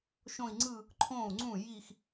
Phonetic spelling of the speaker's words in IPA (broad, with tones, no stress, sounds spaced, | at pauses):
ʃ õ˥˧ i̯ ŋ͡ǀ ɯ˥˧ | ǃʰ õː˥˩ u̯ ŋ͡ǀ ũ˥˩ j i˥˧ x